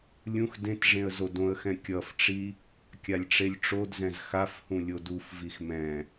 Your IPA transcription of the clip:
lʲ ũ x d ẽ t ʐ ẽ ə̯ z o d õ ə̯ x ɛ̃ kʲ ʌ f ʈ͡ʂ i | kʲ a lʲ ʈ͡ʂ e lʲ ʈ͡ʂ o d z ɛ̃ z x a f h ũ lʲ o d u f v i x m ɛ̃

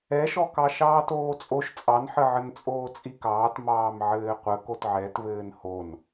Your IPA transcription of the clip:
ɛ ʃ ɔ k ɑ ʃ ɑː t oː t͡sʼ o ʃ t͡sʼ ɑ n ħ ə ʕ ə n t͡sʼ oː t͡sʼ i k ɑː t m ɑː m ʕ ɘː qʷ ə k o t ʕ ɛ t v ɘː n h o n

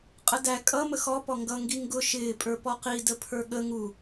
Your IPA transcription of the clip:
qʼ ə d æ kʼ ʌ m ə x ɔ p ɔ ŋ ɡ ʌ ŋ ɡ i ŋ ɡ ʊ ʃ ɪː pʼ ə˞ p ɔ q i d ə pʰ ə˞ ɠ ə ŋ u

